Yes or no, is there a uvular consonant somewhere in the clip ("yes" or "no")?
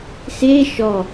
no